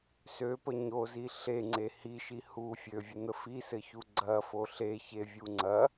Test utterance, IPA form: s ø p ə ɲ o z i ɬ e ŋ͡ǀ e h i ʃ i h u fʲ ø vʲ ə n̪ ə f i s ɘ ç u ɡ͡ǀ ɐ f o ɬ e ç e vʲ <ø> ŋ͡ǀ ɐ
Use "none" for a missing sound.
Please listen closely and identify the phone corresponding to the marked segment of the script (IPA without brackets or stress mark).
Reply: u